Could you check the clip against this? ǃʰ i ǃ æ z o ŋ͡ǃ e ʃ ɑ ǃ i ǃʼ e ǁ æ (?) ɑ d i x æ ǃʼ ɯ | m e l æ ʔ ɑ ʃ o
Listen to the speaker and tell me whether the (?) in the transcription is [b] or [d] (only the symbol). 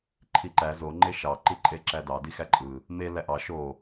d